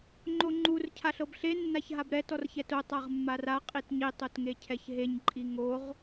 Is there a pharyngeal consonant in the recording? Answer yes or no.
no